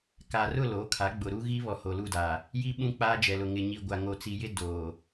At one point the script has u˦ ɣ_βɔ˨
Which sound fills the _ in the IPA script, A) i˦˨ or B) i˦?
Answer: B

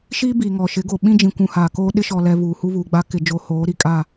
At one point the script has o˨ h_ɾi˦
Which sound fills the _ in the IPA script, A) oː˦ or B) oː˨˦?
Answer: B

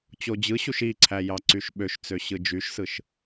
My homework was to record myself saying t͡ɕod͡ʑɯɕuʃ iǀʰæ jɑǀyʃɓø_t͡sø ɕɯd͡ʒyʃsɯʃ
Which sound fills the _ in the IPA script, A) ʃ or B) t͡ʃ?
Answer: A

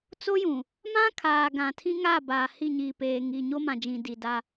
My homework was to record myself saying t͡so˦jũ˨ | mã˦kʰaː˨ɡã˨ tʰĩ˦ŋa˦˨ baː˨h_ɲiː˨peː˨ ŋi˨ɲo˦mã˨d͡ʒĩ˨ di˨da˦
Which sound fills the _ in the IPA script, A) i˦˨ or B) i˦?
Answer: A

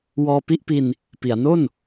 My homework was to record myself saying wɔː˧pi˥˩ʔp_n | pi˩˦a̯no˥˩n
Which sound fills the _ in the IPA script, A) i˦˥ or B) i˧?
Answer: B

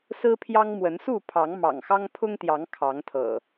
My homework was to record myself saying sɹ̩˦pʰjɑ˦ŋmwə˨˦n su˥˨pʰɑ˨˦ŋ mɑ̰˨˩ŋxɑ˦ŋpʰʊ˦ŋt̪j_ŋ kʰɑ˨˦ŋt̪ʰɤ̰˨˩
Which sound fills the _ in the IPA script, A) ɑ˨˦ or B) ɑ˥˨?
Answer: A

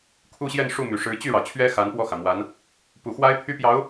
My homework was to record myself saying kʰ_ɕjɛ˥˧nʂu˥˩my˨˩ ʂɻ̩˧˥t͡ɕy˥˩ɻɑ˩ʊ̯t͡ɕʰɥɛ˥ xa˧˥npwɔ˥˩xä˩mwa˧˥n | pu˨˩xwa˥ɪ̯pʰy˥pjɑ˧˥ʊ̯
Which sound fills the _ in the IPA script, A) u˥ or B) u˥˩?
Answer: A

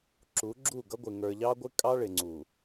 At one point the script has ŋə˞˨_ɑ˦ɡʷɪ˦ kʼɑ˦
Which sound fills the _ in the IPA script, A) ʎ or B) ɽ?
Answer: A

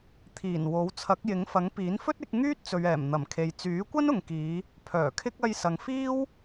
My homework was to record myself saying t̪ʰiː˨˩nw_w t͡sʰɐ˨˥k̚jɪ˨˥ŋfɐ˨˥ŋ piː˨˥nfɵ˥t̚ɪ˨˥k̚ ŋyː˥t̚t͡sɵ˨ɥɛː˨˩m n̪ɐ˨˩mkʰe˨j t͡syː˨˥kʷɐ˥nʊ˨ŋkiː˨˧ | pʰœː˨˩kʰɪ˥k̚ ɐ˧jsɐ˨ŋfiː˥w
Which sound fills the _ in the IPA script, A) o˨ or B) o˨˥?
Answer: B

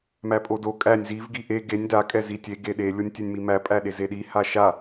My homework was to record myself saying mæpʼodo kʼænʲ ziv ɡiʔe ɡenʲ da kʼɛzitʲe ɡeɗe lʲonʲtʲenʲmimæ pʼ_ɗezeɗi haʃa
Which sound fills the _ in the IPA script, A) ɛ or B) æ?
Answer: B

